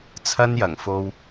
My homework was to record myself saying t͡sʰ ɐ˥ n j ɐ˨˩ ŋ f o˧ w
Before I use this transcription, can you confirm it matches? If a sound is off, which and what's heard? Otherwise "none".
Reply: none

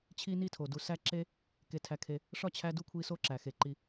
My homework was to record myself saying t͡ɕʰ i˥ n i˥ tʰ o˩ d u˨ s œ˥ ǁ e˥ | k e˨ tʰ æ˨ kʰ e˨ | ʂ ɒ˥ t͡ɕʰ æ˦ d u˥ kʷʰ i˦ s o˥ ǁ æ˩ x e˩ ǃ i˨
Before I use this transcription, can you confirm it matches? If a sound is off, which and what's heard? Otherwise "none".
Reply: œ˥ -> æ˥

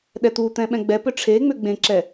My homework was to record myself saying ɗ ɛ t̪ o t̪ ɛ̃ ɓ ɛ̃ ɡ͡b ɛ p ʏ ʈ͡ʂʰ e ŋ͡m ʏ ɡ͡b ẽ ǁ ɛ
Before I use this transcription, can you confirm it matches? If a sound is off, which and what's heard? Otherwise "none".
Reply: o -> u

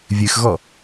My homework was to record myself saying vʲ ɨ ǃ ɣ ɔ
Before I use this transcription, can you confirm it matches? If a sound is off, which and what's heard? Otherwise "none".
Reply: ǃ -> x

